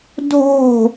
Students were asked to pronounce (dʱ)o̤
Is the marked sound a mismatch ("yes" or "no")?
no